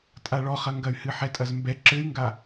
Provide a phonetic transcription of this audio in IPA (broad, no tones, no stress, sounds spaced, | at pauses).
tʼ a ɭ ɔ χ ɐ ŋ ɡ ɐ y̯ h ɨ ħ ɛ tʼ ɐ z m b ɛ ǁ ɘ y̯ ŋ ɡ a